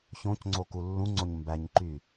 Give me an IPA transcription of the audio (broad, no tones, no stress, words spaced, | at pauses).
çõcŋ͡ǀo kulːũŋ͡ǀoɲ mbæɲǃy